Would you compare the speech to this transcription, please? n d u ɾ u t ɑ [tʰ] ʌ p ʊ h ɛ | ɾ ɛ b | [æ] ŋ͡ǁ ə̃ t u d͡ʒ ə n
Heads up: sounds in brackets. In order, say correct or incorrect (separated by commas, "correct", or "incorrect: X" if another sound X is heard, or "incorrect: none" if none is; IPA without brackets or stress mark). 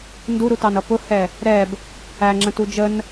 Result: incorrect: n, correct